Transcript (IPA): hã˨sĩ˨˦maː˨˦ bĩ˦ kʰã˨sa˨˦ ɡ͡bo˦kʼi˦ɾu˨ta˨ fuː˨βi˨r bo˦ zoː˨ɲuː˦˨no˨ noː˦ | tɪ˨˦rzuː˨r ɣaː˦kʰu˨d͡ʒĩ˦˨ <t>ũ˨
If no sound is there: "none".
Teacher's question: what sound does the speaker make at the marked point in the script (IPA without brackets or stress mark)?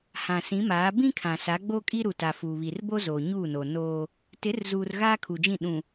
ɗ